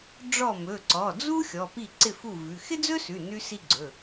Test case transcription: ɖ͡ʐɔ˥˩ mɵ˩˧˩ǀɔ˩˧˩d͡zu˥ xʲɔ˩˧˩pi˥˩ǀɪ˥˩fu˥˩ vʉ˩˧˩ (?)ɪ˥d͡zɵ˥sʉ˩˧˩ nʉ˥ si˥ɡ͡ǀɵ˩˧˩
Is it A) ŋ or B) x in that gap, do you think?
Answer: B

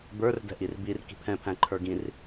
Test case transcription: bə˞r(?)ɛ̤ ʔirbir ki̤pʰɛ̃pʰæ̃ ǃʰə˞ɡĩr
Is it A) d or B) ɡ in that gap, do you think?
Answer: A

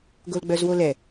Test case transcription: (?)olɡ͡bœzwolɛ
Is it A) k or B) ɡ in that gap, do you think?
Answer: B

